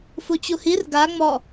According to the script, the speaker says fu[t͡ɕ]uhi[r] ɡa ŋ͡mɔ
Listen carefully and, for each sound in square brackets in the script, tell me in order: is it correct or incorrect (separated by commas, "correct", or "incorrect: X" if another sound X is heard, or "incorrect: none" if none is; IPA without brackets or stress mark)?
correct, correct